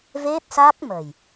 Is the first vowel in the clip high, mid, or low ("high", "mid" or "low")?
mid